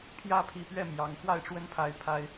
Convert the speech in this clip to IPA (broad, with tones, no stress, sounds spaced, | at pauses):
pʰ j ä˥˨ pʰ i˨˦ p ɥ ɛ˥˨ m j ɑ˨˦ ŋ x w a˥˨ ɪ̯ ʈ͡ʂ w ə˦ n pʰ a˨˦ ɪ̯ pʰ a˦ ɪ̯